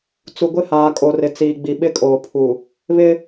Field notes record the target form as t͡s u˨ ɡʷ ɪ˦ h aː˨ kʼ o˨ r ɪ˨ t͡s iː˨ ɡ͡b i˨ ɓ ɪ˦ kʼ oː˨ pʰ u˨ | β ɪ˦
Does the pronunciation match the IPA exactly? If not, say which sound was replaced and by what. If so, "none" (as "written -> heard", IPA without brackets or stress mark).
none